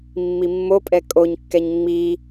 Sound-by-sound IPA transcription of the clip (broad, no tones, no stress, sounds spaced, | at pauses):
mː i mː o pʼ ɛ kʼ o ɲ kː ɛ ɲ ŋ͡m i